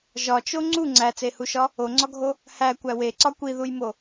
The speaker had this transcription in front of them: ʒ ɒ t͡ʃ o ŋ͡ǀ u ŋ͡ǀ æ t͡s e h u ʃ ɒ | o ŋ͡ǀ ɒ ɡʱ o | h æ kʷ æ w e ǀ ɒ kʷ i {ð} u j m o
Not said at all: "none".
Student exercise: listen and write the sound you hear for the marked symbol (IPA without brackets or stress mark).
ð